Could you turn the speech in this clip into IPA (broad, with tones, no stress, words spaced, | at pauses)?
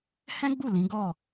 hɛ̃˦ɡ͡bu˦˨ lĩ˨˦ ɡɔ˦˨